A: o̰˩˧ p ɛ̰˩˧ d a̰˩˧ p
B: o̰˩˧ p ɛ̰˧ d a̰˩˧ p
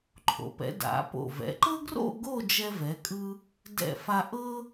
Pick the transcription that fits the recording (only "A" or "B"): A